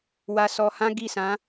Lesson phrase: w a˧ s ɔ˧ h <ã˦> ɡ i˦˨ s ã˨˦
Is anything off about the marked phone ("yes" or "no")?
no